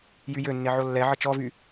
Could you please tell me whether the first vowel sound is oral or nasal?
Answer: oral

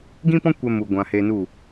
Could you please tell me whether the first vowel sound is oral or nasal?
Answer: nasal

